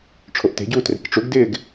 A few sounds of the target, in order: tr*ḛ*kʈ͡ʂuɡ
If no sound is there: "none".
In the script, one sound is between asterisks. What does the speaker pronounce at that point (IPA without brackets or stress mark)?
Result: e̤